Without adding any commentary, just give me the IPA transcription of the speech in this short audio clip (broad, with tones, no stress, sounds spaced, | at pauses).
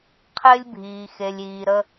qʰ ɪː˦ lʲ bʱ iː˨ x e˨ lʲ iː˨ ɾ ə˦